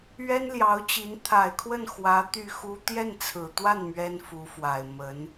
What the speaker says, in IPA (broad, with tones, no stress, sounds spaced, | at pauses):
ɥ ɛ˥ n l j ɑ˧˥ ʊ̯ t͡ɕ i˧˥ n t̪ʰ a˨˩ ɪ̯ kʰ w ə˥˩ n x w ä˧˥ t̪ y˥˩ x u˥ t̪ j ɛ˥˩ n t͡sʰ ɹ̩˨˩ t̪ w a˥˩ n m ɥ ɛ˥ n f u˧˥ f w a˨˩ ɪ̯ m ə˧˥ n